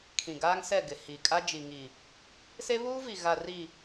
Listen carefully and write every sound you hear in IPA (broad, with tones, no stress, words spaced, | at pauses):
kʰĩ˨ɡaː˦ŋsɛ˦˨ ɡɪ˨hi˨kʼa˦ d͡ʒi˨ŋi˨ | se˦βuː˦vi˨ɣa˨ ri˨